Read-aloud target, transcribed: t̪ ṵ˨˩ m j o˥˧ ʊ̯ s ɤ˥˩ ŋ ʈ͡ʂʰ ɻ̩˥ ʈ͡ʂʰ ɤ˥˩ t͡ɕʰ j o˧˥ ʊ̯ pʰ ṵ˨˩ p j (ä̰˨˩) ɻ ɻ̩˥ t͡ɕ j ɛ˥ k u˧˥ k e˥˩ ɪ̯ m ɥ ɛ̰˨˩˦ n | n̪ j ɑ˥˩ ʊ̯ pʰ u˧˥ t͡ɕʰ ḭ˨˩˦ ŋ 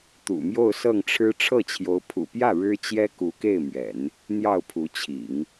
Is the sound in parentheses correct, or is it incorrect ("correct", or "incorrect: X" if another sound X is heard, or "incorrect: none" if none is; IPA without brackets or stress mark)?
incorrect: ä˥˩